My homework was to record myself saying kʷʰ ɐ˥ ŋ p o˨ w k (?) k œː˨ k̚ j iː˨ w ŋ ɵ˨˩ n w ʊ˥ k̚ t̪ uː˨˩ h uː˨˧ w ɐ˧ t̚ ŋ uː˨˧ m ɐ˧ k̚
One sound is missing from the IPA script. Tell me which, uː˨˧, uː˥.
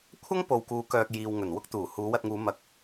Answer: uː˨˧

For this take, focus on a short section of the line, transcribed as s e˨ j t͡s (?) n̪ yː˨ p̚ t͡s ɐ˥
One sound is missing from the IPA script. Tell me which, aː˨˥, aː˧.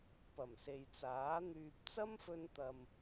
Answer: aː˨˥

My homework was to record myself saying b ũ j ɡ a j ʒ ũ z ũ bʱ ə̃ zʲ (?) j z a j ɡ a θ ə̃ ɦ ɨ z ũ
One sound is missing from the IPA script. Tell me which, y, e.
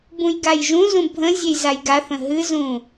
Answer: e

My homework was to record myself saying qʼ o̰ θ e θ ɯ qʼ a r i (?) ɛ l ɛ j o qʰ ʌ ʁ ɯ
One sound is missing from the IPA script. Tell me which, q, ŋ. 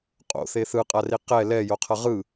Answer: q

